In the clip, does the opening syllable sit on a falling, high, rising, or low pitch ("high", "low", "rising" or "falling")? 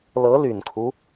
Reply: rising